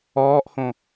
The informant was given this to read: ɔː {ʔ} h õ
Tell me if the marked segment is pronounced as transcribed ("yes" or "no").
yes